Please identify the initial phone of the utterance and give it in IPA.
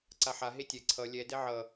ǀ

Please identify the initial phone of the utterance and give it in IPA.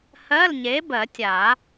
h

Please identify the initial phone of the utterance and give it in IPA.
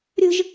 ɾʲ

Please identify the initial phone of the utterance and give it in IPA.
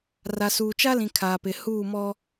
r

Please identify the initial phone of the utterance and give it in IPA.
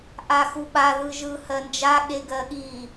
ʔ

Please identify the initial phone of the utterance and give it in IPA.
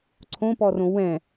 ǀʰ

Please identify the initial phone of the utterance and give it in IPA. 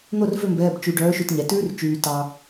n̪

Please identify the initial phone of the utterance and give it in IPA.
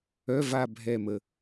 œ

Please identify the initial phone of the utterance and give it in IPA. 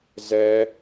z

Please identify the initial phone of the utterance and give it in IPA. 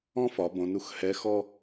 ɔ̃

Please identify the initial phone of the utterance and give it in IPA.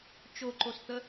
t͡ʃ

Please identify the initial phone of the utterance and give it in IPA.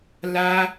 l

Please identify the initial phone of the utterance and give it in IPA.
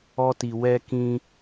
ɔ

